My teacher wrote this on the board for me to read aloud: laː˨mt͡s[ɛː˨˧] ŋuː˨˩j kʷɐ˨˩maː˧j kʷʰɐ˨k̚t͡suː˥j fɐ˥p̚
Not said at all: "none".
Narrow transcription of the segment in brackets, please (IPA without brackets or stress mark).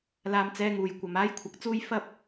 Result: ɛː˨˧